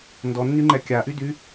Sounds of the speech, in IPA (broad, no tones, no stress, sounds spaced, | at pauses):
n d ɔ nː y ŋ͡ǃ ɛ kʲ a ʔ y d y